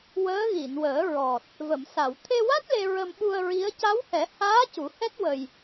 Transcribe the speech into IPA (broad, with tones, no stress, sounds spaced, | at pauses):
w əː˧˥ ɣ i˨˩˨ n w əː˨˩˦ ɹ ɔ˨˩ t̚ | v ə˨˩˨ m s a˨˩˨ w t̪ʰ e˧ w a˦˥ t̚ l e˧ ɹ ə˧ m ɓ u˧ ə̯ ɹ i˧˥ ə̯ c a˧˥ w h ɛ˨˩˦ h aː˧˥ c u˨˩˦ h ɛ˦˥ t̚ w ə˧ j